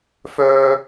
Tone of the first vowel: high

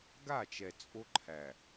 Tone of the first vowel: falling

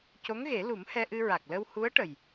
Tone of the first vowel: rising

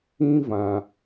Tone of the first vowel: high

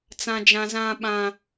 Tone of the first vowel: high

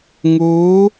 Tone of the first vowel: rising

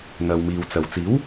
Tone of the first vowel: low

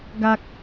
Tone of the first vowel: high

